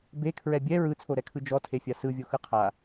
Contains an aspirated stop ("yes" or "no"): yes